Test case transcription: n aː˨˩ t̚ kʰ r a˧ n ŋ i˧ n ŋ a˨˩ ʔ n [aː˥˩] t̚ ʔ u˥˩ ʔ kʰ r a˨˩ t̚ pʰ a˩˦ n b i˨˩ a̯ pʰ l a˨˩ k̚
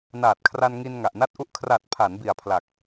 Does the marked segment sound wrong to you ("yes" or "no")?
yes